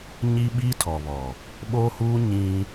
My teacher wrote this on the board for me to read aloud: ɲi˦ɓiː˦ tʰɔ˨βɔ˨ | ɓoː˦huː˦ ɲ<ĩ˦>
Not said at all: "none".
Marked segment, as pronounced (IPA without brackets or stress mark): ĩ˦